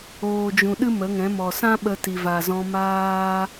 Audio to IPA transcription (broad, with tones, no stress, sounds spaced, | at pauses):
oː˨ d͡ʒ ũ˨ ɗ ɨ˦ m ə˨˦ ŋ ɛ̃˨˦ m ɔ˨ s ã˦ ɓ ə˧ t i˨ v a˨ z ɔ̃˧ m aː˦